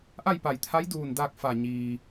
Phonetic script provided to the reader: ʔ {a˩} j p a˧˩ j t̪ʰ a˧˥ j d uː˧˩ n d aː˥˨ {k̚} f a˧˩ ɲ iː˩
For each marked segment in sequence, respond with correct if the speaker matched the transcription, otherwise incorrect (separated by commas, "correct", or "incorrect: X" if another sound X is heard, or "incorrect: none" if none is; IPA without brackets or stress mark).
incorrect: a˥˨, correct